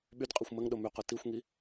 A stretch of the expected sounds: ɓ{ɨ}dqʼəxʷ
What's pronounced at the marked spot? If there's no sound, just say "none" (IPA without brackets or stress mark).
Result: y